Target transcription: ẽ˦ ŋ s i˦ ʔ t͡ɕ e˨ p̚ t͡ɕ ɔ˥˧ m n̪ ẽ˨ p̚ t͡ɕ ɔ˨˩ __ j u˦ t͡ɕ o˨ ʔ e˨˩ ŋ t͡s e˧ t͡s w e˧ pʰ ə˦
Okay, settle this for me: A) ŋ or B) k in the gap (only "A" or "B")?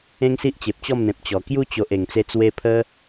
B